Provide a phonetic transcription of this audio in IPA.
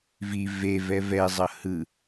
v i v e v ɛ v ɛ zˤ ʌ h ɯ

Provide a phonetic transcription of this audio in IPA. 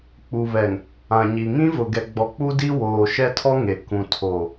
k͡p u˨ β ɛ˨ ŋ | ã˨ ɲ i˨ ŋ ĩ˦ v ʊ˨ ɡ ɛ˨ ɡ͡b ɔ˨ k͡p u˦ d i˦ w oː˨ ʃ ɛ˦ tʰ ɔ˦ ŋ e˨ k ũ˨ tʰ o˨

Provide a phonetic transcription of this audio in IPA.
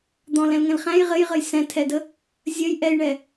d̪ ɔ̃ l ɛ̃ l ŋ ɛ̃ l χ æ̃ j ʁ ɘ j ʁ ə j s ɛ̃ tʰ ɛ d ə | zʲ ə j ʔ ɛ j ɳ ɛ

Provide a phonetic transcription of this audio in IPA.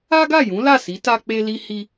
a˦ ɡ a˦˨ j ũ˨˦ l a˦˨ s i˨˦ t a˧ k͡p e˧ l i˧ h i˧

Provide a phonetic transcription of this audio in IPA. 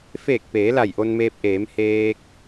f eː˧˩ k̚ p eː˩˧ l a˧˩ j ʔ o˧ n m eː˧ p̚ ʔ eː˩˧ m h eː˧ k̚

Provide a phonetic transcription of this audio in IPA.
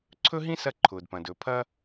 ǀʰ ɵ˥ ɦ ĩ˥ s ɐ˧ ǃʰ ʊː˩ d p ɐ̃˩ d ɵ˩ pʰ ɐ˧

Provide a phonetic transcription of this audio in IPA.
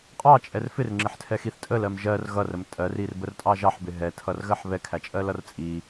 qʼ ɑ t͡ʃʼ ɛ r f ɪ r ŋ͡ǁ ɪ ħ tʰ ɛ x i θ tʼ ə l ɜ m ʒ ɜ r ɣ ʌ r ə m tʼ ɜ r i r b ə r tʼ ɑ ʒ ɑ ħ b ɪ ɦ ɛ tʰ ʌ r ɣ ɜ ħ β ɛ kʰ æ t͡ʃʼ ɜ l ʌ r t͡sʼ i

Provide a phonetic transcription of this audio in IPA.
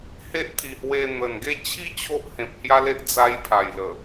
h e˦ ʔ t̪ʰ i˨˩ h w e˧ n̪ ə˨˩ n ɡ e˥˧ t͡ɕʰ i˦ t͡ɕʰ o˦ ʔ h ẽ˨ p̚ h j a˦ l e˦ ʔ d͡z a˧ j pʰ a˨˩ j l ə˨˩

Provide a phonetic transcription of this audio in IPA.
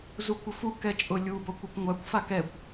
z u kʷ ʊ f u k ɛ t͡ʃʼ ʊ lʲ u b ɔ kʷ ɔ kʷ ŋʷ a kʷ f a k ɛ kʷ

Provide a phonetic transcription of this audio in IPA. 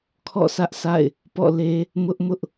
kʰ ɔ̰˦˨ s ä˦ ʔ s a̰˦˨ ɪ̯ | p ɔ̰˦˨ l e˦ | m ʊ˦ ʔ m ʊ˦ ʔ

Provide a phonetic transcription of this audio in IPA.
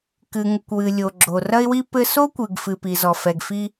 k ɨ˨ ŋ u˨ kʷ w ɨ˨ lʲ o˨ ɡ͡ǁ o˨ r ɐ˦ ɪ̯ w i˦ p ɘ˦ s o˦ kʷ ɨ˨ ɡ f ɨ˨ p i˨ z ɔ˨ f ɛ˨ ɡ f i˦

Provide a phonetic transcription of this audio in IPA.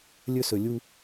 lʲ ɵ˦ s ɵ˨ lʲ u˦

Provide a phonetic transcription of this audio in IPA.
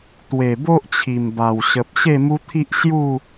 t̪ w e˨˩ b o˦ ʔ t͡ɕʰ i˨˩ m b a˨˩ w ɕ ə˨ p̚ ɕ e˥˧ m u˦ t̪ʰ i˦ ʔ ɕ j u˥˧

